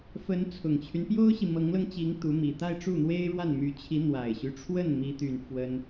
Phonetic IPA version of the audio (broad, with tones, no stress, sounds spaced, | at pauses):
f ə˧˥ n t͡sʰ ʊ˨˩ ŋ t͡ɕʰ y˦ n p j o˥ ʊ̯ ɕ i˨ m ɤ˧˥ ŋ l ɤ˧ ŋ t͡ɕ i˧˥ ŋ t̪ u˧˥ m i˨˩ t̪ a˥˧ ɪ̯ ʈ͡ʂ u˥˩ n̪ w e˥ ɪ̯ ɻ w a˥˩ n m y˧˥ t͡ɕʰ i˧˥ n̪ w a˨˩ ɪ̯ ɕ y˦ ʈ͡ʂʰ w ə˥˩ n m i˥ t̪ y˥˩ n f w ə˥ n